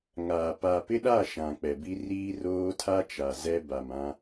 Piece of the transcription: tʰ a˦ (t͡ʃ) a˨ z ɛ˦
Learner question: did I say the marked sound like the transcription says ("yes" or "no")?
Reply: yes